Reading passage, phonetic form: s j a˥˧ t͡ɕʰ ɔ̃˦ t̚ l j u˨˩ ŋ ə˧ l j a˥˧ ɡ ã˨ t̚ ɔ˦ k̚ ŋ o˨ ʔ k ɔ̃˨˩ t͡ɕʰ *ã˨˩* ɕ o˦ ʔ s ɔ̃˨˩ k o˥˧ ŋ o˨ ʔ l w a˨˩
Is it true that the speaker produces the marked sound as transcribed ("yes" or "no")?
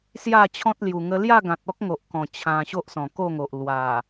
yes